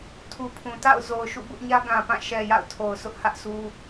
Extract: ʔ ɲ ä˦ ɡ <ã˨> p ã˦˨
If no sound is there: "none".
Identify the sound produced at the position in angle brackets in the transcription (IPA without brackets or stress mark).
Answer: ã˨